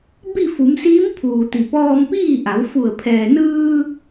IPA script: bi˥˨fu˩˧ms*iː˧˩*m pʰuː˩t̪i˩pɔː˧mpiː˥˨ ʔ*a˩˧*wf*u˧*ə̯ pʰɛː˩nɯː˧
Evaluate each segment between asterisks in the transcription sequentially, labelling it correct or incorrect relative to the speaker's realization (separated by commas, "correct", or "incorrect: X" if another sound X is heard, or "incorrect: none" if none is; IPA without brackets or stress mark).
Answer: incorrect: iː˧˥, correct, incorrect: u˧˩